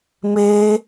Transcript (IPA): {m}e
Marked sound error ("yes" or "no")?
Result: no